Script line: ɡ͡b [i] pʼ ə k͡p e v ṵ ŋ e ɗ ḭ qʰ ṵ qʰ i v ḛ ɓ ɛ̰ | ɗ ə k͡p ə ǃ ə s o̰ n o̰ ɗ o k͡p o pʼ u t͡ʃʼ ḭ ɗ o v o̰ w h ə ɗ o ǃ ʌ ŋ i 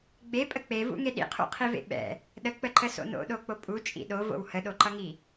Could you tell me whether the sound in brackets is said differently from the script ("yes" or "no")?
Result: yes